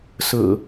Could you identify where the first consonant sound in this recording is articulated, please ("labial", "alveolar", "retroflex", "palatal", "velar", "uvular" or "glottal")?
alveolar